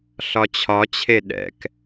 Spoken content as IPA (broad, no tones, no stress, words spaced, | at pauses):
ɬɒt͡ɕʰɒt͡ɕʰe ɗɛ̰k